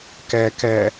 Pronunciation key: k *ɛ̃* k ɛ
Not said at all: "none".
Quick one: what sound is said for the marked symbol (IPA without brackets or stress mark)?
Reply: ɛ